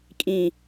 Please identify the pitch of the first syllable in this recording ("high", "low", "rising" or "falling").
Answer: low